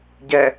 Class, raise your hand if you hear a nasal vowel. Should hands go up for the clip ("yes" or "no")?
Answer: no